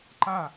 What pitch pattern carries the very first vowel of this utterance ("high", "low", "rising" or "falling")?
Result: falling